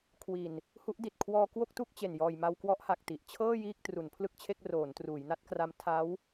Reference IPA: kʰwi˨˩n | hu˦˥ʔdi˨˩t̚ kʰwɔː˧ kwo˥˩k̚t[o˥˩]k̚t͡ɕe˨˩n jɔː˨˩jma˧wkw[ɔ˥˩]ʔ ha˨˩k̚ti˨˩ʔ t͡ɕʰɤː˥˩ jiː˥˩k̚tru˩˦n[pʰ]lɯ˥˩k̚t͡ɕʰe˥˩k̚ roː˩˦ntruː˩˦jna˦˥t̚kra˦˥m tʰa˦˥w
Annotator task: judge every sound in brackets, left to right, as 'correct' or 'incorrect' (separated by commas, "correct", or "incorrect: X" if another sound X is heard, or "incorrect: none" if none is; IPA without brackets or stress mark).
incorrect: u˥˩, incorrect: ɔ˦˥, correct